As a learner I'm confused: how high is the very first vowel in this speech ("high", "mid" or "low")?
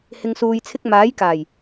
high